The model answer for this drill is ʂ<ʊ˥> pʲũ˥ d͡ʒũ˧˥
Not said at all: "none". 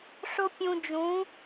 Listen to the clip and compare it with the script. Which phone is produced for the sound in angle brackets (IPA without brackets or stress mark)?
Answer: ʊ˥